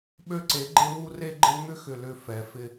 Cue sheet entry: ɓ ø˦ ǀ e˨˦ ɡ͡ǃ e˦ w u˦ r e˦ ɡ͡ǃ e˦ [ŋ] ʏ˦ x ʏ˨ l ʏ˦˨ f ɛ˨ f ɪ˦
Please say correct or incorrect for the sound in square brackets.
correct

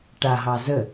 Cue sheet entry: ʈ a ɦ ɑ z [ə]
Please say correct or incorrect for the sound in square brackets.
correct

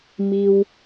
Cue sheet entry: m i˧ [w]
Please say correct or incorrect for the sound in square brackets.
correct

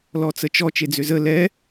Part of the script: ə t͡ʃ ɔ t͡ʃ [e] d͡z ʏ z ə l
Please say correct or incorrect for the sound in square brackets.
correct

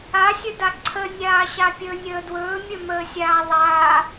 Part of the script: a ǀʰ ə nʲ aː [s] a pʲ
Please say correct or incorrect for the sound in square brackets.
incorrect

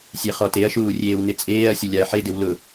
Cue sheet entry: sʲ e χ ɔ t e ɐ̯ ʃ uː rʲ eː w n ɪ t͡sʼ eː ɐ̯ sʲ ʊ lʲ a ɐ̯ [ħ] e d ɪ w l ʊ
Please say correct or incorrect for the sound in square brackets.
correct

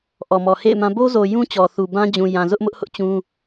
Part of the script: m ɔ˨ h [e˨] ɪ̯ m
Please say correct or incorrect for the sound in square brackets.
incorrect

